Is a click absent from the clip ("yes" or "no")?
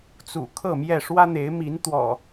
yes